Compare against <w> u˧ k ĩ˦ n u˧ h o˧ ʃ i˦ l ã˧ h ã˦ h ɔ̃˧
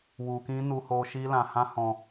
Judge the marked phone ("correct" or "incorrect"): correct